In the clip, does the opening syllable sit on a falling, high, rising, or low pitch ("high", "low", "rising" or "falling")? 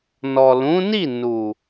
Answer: low